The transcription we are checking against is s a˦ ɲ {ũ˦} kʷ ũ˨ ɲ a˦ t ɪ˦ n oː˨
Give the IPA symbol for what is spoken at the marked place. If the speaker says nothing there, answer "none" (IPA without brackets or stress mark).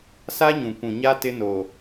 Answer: ũ˨